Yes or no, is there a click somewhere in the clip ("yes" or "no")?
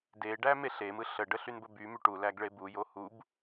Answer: no